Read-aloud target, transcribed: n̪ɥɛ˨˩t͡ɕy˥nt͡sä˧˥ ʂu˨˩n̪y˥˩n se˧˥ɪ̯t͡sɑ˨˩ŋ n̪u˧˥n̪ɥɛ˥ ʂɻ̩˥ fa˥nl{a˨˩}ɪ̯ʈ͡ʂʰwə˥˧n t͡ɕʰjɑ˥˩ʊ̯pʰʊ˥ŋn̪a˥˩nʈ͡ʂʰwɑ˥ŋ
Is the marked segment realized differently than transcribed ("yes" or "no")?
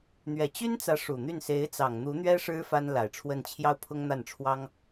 no